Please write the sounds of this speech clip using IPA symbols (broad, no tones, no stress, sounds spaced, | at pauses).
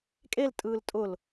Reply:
kʼ e l tʼ ɯː l tʼ ʊ l